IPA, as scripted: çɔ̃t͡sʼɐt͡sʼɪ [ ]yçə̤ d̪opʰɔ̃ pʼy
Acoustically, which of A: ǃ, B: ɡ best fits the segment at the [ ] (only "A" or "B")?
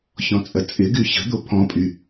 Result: B